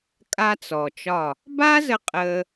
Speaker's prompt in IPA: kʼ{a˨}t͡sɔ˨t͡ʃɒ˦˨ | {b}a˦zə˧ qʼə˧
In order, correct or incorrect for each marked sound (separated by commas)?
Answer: incorrect, correct